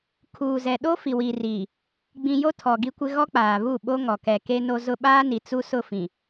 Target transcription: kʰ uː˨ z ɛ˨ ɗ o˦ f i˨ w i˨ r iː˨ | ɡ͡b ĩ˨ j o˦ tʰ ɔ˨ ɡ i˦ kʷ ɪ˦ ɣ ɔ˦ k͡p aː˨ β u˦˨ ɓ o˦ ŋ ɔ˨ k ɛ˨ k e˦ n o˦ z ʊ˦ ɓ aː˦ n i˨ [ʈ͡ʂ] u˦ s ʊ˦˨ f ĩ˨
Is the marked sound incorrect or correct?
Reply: incorrect